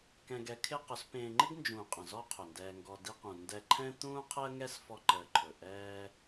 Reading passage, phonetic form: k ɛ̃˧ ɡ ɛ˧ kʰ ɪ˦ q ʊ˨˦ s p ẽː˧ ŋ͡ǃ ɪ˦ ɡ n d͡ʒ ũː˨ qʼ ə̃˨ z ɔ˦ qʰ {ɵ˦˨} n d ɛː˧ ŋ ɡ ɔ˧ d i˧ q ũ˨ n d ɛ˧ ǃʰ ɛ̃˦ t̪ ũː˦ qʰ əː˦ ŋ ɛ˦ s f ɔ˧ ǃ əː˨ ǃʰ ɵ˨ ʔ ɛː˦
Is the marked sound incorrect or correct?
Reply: incorrect